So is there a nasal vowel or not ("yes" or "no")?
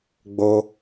no